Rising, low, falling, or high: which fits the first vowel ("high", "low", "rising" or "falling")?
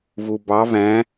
low